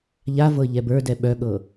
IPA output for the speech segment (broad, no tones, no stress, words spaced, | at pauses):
ʎavɤ ʎɛbə˞dɛ ɓœɠɤ